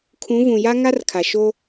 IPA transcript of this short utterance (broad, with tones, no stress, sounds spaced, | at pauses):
kʰ ũ˨˦ v ũ˨ j a˦ ŋ a˦ r kʰ a˨ ʃ o˦